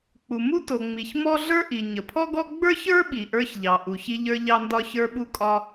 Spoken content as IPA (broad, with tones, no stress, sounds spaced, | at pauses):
k͡p u˩ m u˥ t o˩ ŋ͡m i˩ ç m ɔ˥ ɮ ə˞˥ ʔ i˩ ɲ ə˩ pʰ ɔ˥ ɡ ɔ˥ ɡ͡b ə˞˥ ç ə˞˥ ɓ i˩ ʔ ə˞˥ ç ʎ ɑ˩ ʔ u˩ ç i˥ ʎ ə˞˥ ʎ ɑ˥ n d ɒ˥ ç ə˞˥ ɓ u˥ kʼ ɒ˥